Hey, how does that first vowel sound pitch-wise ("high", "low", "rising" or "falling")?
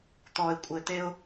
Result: low